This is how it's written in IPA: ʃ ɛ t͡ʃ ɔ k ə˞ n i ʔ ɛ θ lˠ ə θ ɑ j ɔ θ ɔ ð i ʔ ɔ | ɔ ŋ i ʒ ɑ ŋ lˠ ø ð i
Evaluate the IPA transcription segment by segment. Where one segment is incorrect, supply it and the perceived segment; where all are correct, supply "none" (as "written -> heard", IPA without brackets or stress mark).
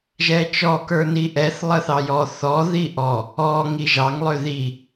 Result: ʃ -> ʒ